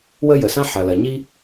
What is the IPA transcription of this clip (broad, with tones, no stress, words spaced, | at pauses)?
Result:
wə˥jə˩sã˥ ħɐ˩lɐ˩ɲi˥